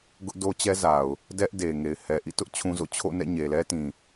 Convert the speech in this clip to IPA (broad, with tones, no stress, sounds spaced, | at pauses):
ɡ ʊ˦ ʔ d o˦ t͡ɕ ɛ˦ z a˨ ʊ̯ | d ɛ˦ ʔ d e˨ ŋ e˨ ɪ̯ h ɛ˨ ʔ ḭ˦˨ t ʊ˦ ʔ t͡ɕʰ ũ˦ z o̰˦˨ t͡ɕʰ o̰˦˨ n ɛ̰˦˨ ɲ e˨ l ɛ˦ t ĩ˨